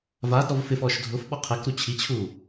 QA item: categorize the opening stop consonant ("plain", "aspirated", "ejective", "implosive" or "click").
plain